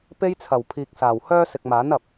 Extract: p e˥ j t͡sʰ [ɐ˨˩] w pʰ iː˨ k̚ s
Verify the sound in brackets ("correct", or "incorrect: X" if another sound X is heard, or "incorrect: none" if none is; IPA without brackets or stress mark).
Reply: correct